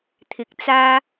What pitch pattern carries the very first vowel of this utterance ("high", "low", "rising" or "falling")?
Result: low